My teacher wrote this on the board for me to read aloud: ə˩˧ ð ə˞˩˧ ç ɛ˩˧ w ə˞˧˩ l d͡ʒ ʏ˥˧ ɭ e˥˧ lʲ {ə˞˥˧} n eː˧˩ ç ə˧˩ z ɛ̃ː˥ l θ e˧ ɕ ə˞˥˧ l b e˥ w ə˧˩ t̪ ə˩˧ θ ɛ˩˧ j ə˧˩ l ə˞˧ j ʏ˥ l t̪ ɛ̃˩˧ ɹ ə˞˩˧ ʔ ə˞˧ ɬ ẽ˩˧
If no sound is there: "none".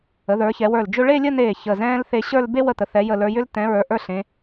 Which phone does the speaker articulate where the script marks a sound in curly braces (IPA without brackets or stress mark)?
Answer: ə˥˧